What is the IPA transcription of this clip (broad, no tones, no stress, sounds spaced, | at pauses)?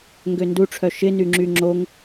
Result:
ŋ ɡ ø n d u ʈ͡ʂʰ œ ʃ ɪ n y ŋ͡ǁ y ŋ͡ǁ o ŋ